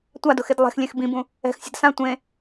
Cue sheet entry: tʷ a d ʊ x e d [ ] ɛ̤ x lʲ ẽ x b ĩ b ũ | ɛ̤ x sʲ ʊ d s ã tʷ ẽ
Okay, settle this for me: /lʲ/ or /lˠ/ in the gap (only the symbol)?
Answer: lˠ